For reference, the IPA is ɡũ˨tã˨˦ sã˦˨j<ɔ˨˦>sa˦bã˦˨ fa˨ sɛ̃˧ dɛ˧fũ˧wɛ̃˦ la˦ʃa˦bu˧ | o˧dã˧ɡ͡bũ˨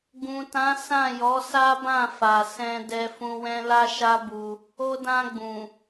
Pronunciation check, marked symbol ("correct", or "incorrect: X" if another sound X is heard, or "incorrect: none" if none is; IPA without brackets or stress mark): correct